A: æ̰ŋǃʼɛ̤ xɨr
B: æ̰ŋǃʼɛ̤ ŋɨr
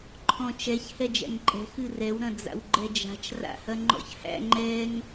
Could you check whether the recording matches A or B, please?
A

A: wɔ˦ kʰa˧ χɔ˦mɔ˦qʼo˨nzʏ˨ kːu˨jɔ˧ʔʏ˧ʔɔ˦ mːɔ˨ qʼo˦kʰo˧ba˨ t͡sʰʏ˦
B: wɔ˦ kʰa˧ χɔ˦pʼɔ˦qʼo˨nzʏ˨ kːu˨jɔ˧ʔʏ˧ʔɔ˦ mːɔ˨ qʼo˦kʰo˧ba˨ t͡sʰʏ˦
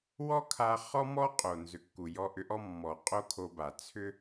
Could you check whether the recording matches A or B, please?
A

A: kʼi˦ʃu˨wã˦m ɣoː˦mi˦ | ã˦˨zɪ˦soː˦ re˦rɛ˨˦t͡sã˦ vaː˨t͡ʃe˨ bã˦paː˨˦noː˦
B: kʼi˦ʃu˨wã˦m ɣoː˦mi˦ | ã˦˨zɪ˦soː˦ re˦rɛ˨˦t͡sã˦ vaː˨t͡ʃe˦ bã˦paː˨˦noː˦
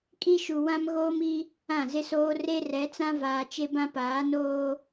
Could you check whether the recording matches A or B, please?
B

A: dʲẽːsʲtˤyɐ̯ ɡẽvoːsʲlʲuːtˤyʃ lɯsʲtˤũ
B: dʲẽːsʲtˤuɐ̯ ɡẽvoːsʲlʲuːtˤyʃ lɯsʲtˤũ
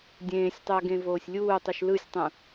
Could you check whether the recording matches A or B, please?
A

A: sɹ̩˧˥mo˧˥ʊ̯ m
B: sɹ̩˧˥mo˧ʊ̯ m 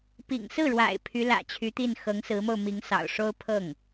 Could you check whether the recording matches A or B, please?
B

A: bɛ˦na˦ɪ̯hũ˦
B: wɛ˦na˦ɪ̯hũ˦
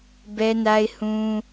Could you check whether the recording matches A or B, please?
A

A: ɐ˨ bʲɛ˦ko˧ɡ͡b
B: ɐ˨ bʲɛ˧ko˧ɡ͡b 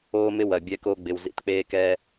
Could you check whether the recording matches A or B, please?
B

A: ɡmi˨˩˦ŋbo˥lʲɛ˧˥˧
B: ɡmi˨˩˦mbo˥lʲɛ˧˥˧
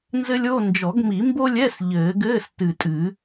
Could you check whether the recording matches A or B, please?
B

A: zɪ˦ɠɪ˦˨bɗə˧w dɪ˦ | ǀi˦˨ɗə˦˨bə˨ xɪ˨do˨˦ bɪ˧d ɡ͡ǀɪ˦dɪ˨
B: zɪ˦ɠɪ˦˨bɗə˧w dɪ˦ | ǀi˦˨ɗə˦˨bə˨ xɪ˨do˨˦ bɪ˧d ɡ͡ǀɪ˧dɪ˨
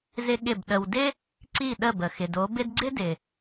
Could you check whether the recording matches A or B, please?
A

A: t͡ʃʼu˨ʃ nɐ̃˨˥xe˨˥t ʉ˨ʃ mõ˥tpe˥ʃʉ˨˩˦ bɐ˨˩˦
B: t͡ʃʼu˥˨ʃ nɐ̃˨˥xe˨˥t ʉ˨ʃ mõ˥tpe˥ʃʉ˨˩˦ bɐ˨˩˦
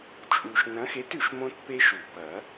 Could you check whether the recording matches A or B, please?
A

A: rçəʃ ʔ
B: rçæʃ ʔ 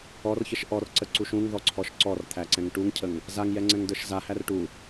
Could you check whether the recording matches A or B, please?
A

